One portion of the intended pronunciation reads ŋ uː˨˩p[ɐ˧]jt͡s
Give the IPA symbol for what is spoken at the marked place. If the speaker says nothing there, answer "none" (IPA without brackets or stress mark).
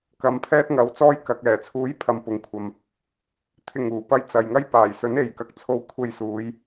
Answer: ɐ˧